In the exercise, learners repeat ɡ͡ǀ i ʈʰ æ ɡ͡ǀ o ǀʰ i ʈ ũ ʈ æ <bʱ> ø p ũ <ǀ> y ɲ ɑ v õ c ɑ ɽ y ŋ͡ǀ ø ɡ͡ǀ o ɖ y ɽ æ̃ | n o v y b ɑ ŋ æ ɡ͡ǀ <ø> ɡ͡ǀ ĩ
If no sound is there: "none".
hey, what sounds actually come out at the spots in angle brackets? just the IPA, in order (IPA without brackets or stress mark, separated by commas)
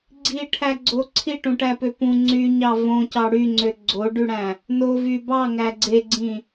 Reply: p, ŋ͡ǀ, e